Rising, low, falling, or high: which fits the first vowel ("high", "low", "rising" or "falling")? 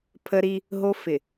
high